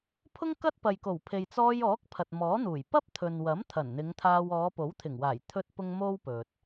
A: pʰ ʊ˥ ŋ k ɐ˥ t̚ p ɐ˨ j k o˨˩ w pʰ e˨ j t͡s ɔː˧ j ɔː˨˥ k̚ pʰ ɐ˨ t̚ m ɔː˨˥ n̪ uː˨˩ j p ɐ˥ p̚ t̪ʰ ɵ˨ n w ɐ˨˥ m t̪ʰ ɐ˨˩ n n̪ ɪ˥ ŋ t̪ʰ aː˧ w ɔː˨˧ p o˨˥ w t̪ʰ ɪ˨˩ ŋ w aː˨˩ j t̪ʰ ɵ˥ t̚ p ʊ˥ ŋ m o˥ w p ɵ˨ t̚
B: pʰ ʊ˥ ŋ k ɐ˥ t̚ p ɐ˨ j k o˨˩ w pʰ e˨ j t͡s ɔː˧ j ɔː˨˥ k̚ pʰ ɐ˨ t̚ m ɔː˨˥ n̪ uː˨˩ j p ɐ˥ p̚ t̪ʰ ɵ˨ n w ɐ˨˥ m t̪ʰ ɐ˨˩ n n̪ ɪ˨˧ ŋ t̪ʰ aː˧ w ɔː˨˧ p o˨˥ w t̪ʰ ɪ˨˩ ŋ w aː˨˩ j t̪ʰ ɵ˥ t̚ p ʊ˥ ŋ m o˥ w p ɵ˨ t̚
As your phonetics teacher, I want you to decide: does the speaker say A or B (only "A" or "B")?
B